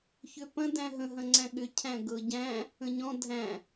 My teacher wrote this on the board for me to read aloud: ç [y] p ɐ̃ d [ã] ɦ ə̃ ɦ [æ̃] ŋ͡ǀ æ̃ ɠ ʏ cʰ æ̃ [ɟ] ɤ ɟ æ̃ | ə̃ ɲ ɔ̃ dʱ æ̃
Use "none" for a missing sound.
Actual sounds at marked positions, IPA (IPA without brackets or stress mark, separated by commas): ʏ, æ̃, ɐ̃, ɡ